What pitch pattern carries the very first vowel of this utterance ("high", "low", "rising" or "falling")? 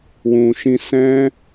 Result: low